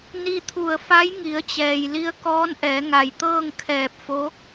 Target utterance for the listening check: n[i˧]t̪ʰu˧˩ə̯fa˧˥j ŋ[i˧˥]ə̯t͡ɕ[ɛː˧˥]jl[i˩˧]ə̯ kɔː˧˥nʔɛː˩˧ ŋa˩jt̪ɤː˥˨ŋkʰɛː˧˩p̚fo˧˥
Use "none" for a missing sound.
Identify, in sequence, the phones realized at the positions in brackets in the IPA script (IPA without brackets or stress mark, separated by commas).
i˧, i˩˧, ɛː˩, i˧